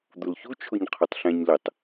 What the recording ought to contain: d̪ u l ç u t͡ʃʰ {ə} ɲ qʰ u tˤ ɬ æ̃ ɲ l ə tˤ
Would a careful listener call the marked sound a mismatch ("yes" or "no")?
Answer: yes